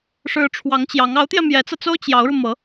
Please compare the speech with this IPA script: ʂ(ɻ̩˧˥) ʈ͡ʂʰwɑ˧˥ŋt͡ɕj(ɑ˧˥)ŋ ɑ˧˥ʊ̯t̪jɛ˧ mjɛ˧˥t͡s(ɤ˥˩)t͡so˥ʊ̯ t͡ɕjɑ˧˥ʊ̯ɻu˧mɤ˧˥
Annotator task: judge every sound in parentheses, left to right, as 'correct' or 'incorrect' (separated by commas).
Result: correct, correct, incorrect